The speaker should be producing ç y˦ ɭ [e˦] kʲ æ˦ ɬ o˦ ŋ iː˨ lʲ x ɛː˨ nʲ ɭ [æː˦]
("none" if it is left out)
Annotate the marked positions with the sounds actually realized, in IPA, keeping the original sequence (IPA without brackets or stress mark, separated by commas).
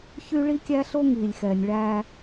i˦, æː˦